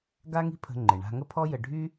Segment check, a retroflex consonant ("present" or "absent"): present